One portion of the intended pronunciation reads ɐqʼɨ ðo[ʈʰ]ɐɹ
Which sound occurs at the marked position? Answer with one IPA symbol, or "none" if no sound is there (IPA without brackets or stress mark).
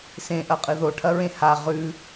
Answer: ʈʰ